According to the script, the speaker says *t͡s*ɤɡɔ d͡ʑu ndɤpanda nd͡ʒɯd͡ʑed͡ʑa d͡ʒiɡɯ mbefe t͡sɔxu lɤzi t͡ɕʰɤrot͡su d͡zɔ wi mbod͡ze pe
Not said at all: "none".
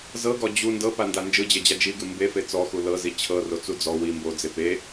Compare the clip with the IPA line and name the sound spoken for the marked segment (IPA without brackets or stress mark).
z